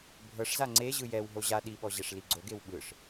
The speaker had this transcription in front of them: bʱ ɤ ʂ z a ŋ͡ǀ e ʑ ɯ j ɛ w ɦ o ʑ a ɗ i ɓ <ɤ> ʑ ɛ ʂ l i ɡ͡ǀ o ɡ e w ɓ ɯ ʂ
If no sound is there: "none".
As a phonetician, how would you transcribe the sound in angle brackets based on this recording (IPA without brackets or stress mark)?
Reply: ɔ